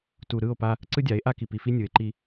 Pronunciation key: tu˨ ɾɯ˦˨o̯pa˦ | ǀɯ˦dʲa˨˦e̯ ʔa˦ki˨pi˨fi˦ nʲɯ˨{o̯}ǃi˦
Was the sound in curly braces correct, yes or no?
no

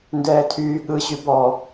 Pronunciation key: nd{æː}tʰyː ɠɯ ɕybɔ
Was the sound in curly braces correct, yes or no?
no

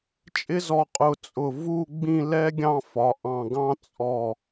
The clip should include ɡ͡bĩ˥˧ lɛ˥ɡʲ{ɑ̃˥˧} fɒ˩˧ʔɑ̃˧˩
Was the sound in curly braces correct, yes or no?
yes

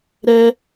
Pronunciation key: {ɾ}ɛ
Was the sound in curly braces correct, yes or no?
yes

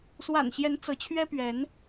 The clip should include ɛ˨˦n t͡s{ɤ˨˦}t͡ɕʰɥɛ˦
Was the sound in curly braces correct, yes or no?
yes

